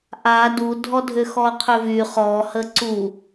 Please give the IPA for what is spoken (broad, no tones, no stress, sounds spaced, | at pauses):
ʔ a d u dʱ ɔ dʱ ʏ x ɔ qʰ ʏ v y χ ɔ h ə ǀ u